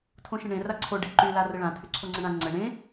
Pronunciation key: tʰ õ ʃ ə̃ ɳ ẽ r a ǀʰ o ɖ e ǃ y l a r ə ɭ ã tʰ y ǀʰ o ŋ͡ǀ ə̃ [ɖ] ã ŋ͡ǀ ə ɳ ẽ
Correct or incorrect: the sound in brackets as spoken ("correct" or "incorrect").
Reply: incorrect